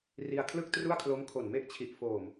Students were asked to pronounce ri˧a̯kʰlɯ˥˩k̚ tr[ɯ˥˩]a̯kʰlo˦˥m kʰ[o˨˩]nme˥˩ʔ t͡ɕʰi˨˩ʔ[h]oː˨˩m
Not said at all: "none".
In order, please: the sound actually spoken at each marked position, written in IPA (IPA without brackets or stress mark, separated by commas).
u˥˩, o˨˩, f